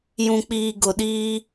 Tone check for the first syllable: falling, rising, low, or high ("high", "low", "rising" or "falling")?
low